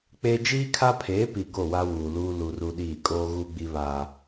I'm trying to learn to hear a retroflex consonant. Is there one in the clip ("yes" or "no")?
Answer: no